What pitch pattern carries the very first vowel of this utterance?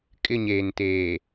falling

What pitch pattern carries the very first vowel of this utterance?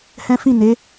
high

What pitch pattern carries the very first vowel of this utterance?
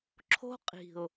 high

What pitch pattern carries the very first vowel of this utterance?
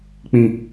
low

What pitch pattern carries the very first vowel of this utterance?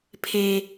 low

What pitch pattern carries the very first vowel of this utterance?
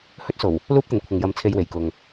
high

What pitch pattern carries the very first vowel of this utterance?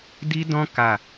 high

